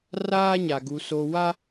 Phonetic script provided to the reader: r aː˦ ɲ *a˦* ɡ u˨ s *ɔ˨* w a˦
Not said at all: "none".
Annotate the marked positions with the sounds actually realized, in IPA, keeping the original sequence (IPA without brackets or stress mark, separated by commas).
a˨, o˨